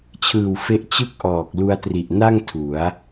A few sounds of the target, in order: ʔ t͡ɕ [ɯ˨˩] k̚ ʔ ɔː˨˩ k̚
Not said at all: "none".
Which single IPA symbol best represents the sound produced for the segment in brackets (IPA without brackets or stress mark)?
ɯ˥˩